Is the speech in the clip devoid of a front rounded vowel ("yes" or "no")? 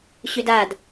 no